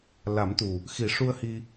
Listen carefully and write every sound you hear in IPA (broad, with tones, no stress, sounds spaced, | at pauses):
l a˨˩˦ m t̪ u˨˩ | x i˨˩˦ ʂ u˧ ə̯ h i˧